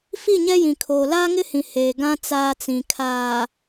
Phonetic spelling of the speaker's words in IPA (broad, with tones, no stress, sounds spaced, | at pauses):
f i˦˨ ɲ ɛ˦ j ĩ˨ kʰ oː˨ l aː˦ ŋ ɪ˦ h ĩ˨ h eː˨ ɡ ã˦ t͡s aː˦ t͡s ĩ˨ kʰ aː˨